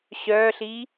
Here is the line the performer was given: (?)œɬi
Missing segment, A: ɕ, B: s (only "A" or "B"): A